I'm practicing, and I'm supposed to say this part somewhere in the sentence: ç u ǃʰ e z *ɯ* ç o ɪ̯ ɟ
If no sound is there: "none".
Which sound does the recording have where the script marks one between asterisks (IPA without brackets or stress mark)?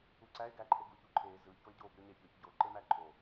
ɯ